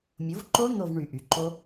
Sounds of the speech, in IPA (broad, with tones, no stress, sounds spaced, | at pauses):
mʲ o˩˥ v ǃ o˦˥ n̪ o˦˨ v ɳ y˨˩ ʔ y˩˧ ǃ o˦˥